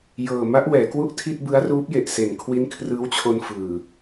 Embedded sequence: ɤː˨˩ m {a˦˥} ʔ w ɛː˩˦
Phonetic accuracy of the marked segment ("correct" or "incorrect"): correct